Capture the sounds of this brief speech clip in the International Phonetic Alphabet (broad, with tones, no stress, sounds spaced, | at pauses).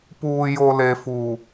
p uː˨ j o˨ l e˨ f uː˨